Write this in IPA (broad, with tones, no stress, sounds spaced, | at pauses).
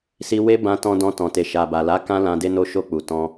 s i˧ w e˦ b ã˧ t ɔ̃˧ d ɔ̃˧ t ɔ̃˨ t e˨ ʃ a˨ b a˨ l a˨˦ k ã˦ l ã˧ d e˧ n o˧ ʃ o˧ k͡p u˨ t ɔ̃˧